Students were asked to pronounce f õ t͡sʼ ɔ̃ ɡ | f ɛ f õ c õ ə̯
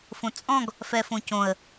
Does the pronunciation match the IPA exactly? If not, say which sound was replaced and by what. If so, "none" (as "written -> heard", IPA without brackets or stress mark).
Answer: none